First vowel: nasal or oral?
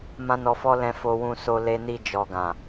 nasal